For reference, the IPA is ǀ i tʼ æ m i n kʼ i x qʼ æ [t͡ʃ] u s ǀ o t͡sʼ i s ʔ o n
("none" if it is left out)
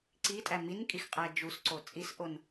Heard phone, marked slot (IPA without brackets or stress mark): d͡ʒ